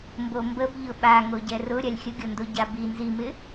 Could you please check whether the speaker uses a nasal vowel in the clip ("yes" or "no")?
no